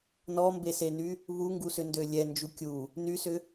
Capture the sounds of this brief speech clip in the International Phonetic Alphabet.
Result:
nɔmbeseny | βuŋɡusʏndø lʲɛnd͡ʒu kʲu | nysʏ

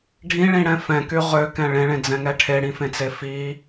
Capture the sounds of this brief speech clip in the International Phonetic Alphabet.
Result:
ɖʱĩɭĩɽɛ̃ fɛ̃ky ʁøkɛ̃ ɭẽɭẽd͡zɛ̃ŋɛ ʈʰeɽĩfẽt͡se fi

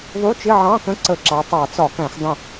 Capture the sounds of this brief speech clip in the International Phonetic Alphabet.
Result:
ðˤu˧˥˧t͡ʃɪ˧˥˧ʕɑ̃˧˥˧kə̃˧˥˧ ǀə˧˩˧ǁɑ˩˧ tˤɑ˧˩˧t͡sɒ˧˩˧kæ̃˧˩˧x dˤə̃˧˩

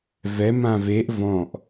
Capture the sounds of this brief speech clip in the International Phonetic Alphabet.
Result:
vɛ mãveʔ vɔ̃ʔ

